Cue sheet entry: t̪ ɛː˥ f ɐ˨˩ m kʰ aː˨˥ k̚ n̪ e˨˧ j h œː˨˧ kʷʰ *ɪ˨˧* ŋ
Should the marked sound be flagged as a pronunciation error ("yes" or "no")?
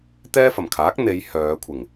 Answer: yes